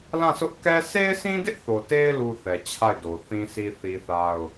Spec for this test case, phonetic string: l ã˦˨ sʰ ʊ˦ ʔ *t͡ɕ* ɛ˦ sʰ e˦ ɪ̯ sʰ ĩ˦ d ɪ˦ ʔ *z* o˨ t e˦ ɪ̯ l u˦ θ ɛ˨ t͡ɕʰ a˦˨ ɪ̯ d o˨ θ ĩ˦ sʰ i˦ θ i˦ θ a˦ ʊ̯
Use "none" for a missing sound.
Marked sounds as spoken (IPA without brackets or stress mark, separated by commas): k, θ